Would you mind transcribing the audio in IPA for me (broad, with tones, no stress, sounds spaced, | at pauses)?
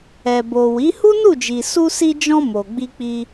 ɛ˨ b o˨ w i˨˦ h u˦ n u˦˨ d͡ʒ i˨ s u˧ s i˧ d͡ʒ ɔ̃˧ m o˨ ɡ͡b i˧ k͡p i˧